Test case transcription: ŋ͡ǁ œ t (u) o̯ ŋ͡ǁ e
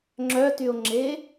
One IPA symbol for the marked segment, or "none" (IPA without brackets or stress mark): y